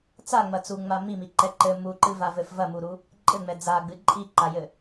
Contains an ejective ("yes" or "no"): yes